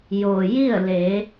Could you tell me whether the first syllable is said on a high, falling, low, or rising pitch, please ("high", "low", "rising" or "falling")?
low